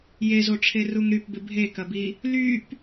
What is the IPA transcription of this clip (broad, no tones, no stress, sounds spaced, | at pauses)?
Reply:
j e z o ʈ͡ʂʰ e r u ŋ ɾ y p b ɪ bʱ e k ɐ b i | l y p